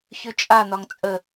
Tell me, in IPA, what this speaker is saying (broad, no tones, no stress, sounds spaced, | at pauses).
ç ʉ t͡ʃʼ a n̪ ɒ ŋ t͡sʼ ə